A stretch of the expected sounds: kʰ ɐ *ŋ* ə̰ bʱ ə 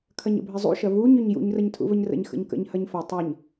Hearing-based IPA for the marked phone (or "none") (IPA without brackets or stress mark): ɲ